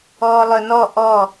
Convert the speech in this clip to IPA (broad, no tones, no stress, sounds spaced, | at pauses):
ɔː lˠ œ n ɔ ʔ ɔ